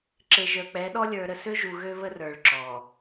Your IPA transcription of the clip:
ǁ e˨ ʒ ə˞˨ k͡p ɛ˨˦ ɗ ɔ˦ lʲ ə˞˨ ɾ ə˨ s ø˦ ʒ u˨ ɣ ø˦ β ə˦ r ə˞˨ ɭ ǁ ɔ˨

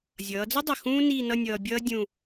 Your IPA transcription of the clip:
zʲ ʌː˩˧ d͡z ə˥ dˤ ə˧˩ x ũː˥ n iː˥˧ n ʌ˥˧ nʲ ʌː˧ bʲ ʌː˥ dʲ ũ˥˧

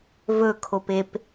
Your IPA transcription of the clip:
v ɵ kʰ o p e p

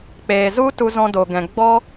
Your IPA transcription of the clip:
k͡p eː˨ z u˦ t u˧ z ɔ̃˧ d o˨ ɡ ɛ̃˨ ɡ͡b ɔ˦

